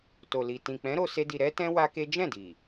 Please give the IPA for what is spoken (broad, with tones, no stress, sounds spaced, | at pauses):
t o˨ l i˨ t ĩ˨ k͡p ɛ̃˨˦ ɾ o˧ s e˦ d i˧ ɾ ɛ˦ t ɛ̃˦ w a˦ k e˦ d͡ʒ ɛ̃˦˨ d i˨